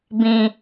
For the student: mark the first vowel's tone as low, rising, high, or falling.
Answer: low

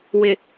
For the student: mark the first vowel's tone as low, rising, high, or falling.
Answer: low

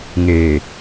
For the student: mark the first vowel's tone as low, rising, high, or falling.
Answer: low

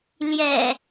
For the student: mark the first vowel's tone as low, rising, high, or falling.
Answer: low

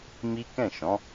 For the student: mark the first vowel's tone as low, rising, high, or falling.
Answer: high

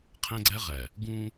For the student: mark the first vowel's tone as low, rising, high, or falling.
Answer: high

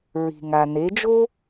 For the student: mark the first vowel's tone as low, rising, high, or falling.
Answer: low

